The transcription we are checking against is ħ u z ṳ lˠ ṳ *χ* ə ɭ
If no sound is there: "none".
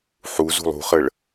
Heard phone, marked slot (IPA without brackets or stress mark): χ